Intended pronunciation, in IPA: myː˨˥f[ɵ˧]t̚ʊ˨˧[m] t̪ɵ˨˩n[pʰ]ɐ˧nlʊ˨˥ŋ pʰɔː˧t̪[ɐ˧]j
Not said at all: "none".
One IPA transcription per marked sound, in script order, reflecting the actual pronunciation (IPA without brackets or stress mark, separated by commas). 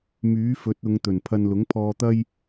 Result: ɵ˨˥, ŋ, pʰ, ɐ˥